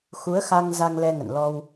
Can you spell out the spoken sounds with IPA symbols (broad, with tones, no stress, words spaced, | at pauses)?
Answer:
xu˨˦ə̯xa˧ŋ za˧ŋlɛ˧ŋə̰˧˨nlɔ˧w